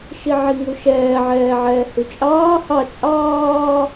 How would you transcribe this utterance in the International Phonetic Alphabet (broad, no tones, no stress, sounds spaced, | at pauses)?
ʃ i ʕ i ŋ u ʃ ɛː ʕ ɛː ʕ ɛː h ʉ t͡ʃʼ ɑː h ɑ t͡ʃʼ ɑː